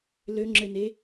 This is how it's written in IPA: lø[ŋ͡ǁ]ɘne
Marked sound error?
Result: no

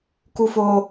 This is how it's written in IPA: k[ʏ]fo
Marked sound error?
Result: yes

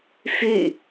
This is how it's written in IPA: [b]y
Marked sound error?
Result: yes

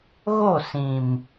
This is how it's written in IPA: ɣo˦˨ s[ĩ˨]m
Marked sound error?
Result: no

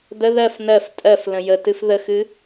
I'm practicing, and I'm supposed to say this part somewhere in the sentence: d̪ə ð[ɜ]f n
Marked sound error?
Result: no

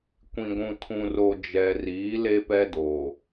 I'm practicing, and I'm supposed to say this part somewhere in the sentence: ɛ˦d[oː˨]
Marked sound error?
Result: no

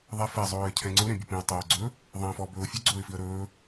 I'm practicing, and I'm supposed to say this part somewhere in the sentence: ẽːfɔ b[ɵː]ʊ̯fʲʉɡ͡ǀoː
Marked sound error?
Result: no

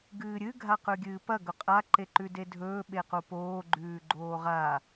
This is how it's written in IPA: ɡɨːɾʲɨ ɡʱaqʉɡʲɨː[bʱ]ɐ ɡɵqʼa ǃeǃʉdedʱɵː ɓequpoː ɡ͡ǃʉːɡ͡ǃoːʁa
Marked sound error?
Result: yes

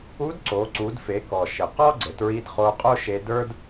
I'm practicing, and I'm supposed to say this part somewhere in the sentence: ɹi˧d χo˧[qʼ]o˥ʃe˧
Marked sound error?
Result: no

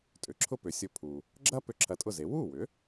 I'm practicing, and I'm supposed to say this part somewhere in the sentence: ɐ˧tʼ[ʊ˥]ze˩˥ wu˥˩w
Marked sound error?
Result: yes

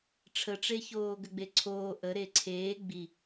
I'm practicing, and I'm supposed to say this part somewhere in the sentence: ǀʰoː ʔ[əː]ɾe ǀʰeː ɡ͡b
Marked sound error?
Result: yes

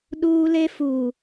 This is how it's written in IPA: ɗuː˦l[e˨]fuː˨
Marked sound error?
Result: yes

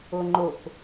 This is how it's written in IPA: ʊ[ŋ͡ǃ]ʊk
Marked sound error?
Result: no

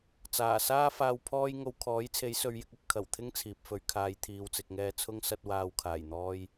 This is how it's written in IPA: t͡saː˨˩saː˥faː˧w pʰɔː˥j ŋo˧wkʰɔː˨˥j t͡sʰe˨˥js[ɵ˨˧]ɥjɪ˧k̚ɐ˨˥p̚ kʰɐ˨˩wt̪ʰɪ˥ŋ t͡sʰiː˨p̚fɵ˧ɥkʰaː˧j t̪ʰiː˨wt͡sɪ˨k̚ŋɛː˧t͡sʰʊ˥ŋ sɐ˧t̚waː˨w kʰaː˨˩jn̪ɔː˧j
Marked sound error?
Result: no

